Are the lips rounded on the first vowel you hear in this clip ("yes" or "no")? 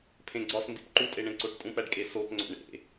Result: no